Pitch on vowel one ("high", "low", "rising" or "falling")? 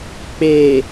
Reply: low